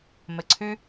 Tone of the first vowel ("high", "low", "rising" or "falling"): low